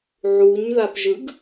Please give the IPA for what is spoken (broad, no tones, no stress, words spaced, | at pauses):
ʕuɲ ðapʒɯɡ